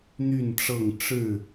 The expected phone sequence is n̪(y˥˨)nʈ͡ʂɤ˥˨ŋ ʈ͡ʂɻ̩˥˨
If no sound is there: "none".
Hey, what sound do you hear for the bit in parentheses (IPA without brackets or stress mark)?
y˥˨